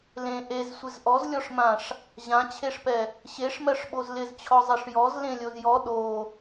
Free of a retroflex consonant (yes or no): no